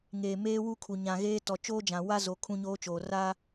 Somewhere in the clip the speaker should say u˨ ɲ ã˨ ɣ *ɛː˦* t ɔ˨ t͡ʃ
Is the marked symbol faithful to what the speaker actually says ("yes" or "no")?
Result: no